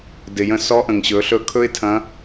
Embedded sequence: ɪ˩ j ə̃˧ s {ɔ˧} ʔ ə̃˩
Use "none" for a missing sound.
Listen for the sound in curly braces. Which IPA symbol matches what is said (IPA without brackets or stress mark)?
ɔ˧˥